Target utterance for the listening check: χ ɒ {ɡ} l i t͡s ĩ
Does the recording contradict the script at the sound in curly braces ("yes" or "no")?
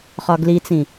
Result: no